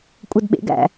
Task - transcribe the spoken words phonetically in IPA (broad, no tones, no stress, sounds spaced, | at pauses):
kʷʼ ɤ d ɓ ḛ ɡ æ̰